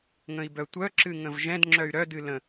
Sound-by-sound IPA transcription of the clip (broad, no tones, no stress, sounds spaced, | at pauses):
ŋ ə̃ i̯ b œ tʷ œ ǁ ɨ ŋ ə̃ v ʒ ɛ̃ d ŋ͡ǁ œ y̯ ɾ œ d ɨ l ə̃